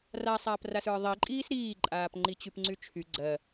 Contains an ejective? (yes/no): yes